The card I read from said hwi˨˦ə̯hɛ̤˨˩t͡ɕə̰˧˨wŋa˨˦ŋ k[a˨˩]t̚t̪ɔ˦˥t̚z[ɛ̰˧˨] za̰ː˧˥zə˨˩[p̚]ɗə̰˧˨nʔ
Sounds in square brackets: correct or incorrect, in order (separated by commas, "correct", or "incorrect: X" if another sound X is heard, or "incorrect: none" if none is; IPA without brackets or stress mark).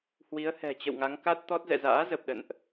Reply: incorrect: a˦˥, correct, correct